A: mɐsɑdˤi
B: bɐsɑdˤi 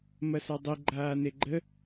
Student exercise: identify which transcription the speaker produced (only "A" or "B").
A